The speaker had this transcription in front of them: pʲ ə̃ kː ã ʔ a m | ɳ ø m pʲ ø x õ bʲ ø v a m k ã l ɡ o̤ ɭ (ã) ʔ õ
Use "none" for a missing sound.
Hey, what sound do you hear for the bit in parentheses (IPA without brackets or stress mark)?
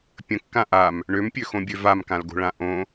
ã